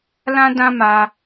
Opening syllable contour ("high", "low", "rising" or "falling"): high